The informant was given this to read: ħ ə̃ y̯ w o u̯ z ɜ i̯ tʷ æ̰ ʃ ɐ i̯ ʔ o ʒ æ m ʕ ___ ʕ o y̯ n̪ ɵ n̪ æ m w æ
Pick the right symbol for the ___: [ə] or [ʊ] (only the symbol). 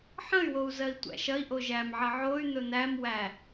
ə